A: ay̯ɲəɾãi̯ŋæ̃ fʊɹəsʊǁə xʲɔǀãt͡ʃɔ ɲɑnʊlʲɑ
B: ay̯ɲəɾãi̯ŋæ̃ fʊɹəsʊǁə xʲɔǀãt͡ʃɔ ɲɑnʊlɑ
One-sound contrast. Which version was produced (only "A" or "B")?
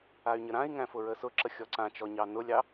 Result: A